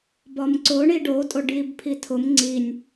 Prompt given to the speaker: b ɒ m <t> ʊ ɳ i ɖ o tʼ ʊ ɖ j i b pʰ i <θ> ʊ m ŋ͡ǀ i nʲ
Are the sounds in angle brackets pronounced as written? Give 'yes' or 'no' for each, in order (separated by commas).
no, no